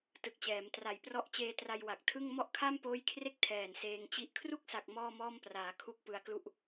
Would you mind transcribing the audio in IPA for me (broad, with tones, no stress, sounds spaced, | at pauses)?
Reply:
t ɯ˨˩ k̚ t͡ɕ ɛː˩˦ m t r a˨˩ j p r ɔ˦˥ ʔ t͡ɕ eː˧ t r a˧ j w a˨˩ k̚ tʰ ɯ˥˩ ŋ m ɔ˥˩ ʔ kʰ a˥˩ m p oː˦˥ j kʰ r e˥˩ k̚ tʰ ɛː˨˩ n s eː˧ ŋ t͡ɕ i˥˩ ʔ kʰ r u˥˩ k̚ s a˨˩ k̚ m ɔː˥˩ m ɔː˥˩ m p r aː˩˦ kʰ u˥˩ k̚ p ɯ˧ a̯ k l u˥˩ ʔ